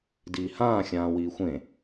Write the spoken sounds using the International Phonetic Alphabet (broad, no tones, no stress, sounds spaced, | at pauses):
d iː h ãː xʲ ãː w iː xʷ ẽ